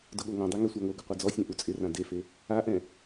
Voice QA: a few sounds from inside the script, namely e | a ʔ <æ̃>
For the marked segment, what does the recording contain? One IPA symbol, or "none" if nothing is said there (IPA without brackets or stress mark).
ɛ̃